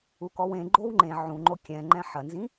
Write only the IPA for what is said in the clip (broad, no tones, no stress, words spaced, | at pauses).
ukɔwẽ ɡ͡ǃowŋ͡ǃẽ ʕũŋ͡ǃo kʲɛ̃ ŋ͡ǃɛ̃ħɐnzĩ